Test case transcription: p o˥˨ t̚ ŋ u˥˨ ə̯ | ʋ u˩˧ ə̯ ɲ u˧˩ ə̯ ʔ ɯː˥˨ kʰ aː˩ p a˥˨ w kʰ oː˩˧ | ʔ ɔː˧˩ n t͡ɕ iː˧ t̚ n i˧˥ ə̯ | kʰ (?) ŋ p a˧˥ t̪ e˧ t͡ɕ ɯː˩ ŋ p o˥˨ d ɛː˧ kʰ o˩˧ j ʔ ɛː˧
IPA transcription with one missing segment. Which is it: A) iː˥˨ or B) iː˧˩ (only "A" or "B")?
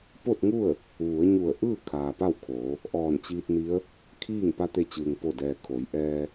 A